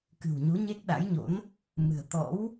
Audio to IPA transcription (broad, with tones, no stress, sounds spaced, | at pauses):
k ɨ̤˨˩ w ɲ u˨˦ ɲ e˦˥ k̚ ɗ a̰˧˥ j ɲ o̰˧˥ n | m ɨ̤˨˩ ə̯ t̪ ɔ̰˧˥ w